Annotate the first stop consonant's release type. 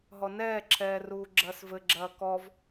click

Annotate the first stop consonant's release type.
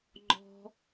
click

